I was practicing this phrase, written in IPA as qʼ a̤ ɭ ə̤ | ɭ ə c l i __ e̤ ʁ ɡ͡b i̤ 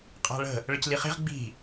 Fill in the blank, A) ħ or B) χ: B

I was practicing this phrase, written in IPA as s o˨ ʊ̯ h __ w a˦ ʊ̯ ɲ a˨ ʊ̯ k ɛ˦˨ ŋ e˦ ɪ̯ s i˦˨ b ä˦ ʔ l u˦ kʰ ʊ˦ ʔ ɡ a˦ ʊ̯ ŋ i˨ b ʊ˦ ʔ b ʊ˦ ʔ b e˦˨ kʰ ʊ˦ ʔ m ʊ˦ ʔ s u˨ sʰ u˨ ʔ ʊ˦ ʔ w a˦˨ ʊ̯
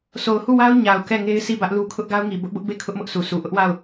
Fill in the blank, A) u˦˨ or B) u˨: A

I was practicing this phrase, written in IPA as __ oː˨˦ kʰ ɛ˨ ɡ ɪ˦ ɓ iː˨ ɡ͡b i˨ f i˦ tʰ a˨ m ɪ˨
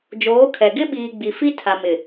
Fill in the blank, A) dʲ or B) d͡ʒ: B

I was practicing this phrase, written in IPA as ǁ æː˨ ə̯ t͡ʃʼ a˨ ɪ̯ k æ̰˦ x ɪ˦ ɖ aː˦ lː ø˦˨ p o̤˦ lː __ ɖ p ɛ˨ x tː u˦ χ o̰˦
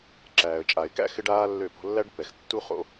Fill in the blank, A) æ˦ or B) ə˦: A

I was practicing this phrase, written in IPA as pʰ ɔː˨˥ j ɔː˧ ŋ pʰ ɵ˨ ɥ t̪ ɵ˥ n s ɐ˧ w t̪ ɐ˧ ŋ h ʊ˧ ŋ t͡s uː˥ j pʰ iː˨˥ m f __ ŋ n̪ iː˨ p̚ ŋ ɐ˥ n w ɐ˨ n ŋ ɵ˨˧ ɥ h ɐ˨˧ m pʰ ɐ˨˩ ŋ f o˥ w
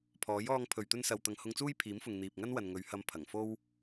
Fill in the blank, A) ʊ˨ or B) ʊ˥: A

